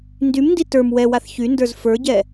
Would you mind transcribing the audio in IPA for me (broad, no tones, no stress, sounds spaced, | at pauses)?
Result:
n d y m n d i t ə˞ m w ɛ w a θ ç y n d ə˞ z f ə˞ ɟ ɛ